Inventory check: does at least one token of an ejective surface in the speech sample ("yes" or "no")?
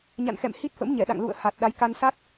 no